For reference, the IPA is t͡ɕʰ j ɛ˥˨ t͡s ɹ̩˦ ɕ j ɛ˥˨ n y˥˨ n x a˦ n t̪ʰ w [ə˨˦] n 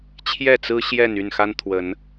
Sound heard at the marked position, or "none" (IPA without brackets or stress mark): ə˨˦